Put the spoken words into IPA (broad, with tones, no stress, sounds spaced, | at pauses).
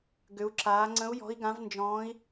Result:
ɡ ʏ˦˥ u̯ ǁ aː˦˥ ŋ͡ǀ ə̃˦˥ u̯ j ɔ̤˦˥ i̯ ɡ ã˦˥ v n d͡ʒ ɔ̃ː˦˥ i̯